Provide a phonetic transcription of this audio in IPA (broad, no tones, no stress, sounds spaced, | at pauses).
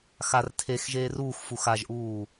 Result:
x a r tʰ e x ʒ eː r uː x f u x a ʒ ʔ uː